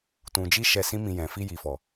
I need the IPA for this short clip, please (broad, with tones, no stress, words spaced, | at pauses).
tũ˨d͡ʒi˧ ʃɛ˧sĩ˦mĩ˧jɛ̃˨ fi˧ji˨fɔ˨